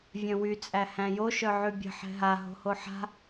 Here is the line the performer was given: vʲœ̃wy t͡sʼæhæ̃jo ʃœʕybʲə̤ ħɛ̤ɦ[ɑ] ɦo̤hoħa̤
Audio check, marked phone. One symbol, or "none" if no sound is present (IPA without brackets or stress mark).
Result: a